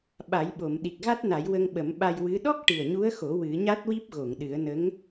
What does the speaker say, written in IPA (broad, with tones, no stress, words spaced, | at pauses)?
ɓa˨˩˦jɓo˨˩˨m ɗi˨˩k̚ɣa˦˥t̚na˨˩˦j wə˧ŋ ɓə˨˩˦mɓa˧j wɨ˧˥ ɗɔ˦˥k̚ ʈɨ˨˩ə̯ɲu˧˥ə̯xo˨˩˦ wɨ˨˩˦ɲa˦˥t̚wi˦˥p̚ ɣo˨˩˨ŋɗɨ˨˩˦ə̯nə˧˥ŋ